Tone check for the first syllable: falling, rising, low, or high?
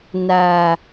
low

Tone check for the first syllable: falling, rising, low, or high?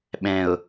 low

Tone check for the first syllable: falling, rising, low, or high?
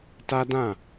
high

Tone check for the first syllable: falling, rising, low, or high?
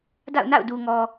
falling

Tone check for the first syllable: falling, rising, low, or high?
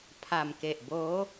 low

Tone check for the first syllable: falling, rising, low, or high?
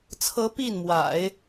rising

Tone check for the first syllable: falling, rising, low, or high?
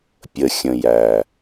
low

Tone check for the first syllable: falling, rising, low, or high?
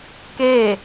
falling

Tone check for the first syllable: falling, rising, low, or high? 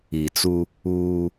low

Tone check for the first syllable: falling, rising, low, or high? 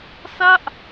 falling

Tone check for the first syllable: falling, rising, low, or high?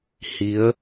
rising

